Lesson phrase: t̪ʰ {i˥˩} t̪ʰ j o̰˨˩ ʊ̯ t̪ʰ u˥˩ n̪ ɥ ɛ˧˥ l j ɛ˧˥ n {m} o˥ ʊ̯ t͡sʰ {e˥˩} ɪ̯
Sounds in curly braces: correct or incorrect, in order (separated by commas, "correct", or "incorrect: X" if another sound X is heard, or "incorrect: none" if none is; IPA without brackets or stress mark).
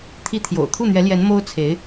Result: incorrect: i˥, correct, incorrect: e˧˥